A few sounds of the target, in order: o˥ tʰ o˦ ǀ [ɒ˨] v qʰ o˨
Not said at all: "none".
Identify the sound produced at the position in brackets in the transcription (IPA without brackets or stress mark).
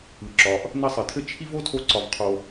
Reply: ɒ˨